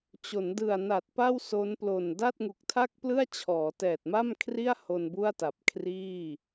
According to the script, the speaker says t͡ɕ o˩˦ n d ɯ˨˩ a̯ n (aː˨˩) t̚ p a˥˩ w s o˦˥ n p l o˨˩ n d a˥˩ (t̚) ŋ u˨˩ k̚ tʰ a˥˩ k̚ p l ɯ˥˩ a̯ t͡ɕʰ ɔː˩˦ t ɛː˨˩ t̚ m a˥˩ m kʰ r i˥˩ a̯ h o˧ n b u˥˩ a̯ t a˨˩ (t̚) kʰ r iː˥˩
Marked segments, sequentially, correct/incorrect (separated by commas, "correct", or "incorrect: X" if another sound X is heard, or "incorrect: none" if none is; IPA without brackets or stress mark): incorrect: a˨˩, correct, incorrect: p̚